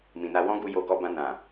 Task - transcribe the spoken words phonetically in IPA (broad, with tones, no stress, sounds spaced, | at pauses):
m ĩ˨ n a˧ w ɔ̃˦ ɡ u˧ j o˧ ɡ ɔ˧ b ã˧ n ã˨